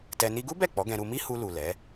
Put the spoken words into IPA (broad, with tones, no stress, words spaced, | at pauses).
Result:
tɛ˧ni˦ ɡu˦bɛ˦˨ k͡pɔ˨˦ɡɛ̃˧ɾu˧ mi˦hu˧lu˨ lɛ˨˦